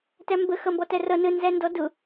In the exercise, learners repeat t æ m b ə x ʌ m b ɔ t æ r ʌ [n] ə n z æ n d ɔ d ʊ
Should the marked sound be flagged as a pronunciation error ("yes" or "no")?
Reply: no